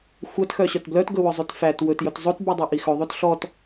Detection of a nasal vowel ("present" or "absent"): absent